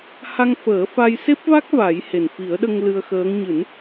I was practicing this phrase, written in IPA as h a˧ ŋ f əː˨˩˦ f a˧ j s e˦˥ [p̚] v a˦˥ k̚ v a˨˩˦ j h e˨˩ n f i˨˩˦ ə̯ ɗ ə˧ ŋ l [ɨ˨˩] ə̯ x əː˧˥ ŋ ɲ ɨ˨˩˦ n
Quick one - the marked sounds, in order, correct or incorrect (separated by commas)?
correct, incorrect